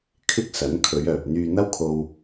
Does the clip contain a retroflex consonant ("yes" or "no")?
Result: no